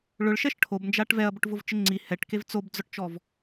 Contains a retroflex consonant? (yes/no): yes